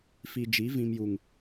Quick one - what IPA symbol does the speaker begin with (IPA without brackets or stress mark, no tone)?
f